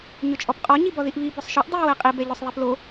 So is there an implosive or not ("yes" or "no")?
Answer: no